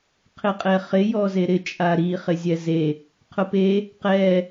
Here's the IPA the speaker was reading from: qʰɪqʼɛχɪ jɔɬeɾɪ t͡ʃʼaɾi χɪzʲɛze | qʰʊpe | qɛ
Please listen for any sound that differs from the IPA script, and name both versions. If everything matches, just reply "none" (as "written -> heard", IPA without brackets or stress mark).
ɬ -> z